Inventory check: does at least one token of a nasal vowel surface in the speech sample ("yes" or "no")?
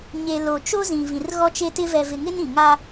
yes